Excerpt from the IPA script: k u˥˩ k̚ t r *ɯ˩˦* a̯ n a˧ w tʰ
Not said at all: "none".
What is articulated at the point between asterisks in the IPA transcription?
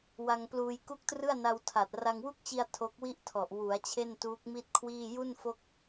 ɯ˥˩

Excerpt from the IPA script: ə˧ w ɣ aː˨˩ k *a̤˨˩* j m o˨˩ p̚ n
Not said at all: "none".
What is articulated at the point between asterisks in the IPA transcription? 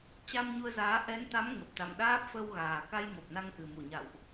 a˧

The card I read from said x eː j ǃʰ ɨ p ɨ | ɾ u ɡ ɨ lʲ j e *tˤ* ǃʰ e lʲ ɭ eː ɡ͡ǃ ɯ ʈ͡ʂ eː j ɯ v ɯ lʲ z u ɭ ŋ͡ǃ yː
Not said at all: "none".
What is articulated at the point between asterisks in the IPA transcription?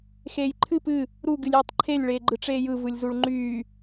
tˤ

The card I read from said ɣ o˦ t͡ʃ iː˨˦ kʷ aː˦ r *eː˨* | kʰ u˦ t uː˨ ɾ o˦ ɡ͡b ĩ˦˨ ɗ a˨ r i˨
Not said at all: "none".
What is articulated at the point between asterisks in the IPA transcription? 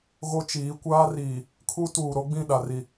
iː˨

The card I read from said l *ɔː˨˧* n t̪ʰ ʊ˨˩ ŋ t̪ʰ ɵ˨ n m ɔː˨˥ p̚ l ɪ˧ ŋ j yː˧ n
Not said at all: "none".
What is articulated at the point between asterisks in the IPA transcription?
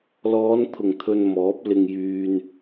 ɔː˨˧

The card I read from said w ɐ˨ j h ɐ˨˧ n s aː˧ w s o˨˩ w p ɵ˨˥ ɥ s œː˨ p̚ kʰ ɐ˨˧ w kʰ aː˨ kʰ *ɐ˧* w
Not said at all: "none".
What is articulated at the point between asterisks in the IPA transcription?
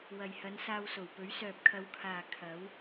ɐ˨˥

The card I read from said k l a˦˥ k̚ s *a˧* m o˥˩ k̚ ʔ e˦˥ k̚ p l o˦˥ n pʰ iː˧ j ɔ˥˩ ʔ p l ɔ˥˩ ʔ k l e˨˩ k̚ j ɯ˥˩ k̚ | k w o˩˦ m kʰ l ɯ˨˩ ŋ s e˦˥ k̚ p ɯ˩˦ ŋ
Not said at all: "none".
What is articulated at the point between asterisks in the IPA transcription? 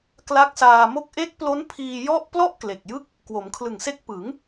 aː˧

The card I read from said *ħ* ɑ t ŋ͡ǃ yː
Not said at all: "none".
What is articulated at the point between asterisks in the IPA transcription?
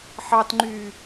ħ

